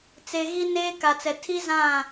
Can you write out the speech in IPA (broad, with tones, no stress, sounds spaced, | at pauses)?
t͡s e˨ ɣ i˦ n eː˦ k a˨ t͡s ɛ˨ tʰ i˦ z ã˦˨